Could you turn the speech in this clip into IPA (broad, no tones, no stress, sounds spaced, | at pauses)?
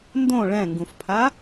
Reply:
n d õ ɭ ɛ̃ ŋ ɡ ũ f pʰ a